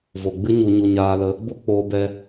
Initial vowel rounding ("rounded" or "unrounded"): rounded